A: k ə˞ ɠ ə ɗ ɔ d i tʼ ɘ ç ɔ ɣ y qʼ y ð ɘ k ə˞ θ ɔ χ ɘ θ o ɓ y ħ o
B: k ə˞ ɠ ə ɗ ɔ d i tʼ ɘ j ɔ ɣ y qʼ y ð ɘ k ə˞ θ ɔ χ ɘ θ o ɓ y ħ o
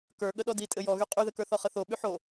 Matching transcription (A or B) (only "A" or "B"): B